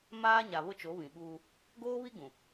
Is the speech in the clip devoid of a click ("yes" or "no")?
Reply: yes